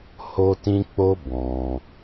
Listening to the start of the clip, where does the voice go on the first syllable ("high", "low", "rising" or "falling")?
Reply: high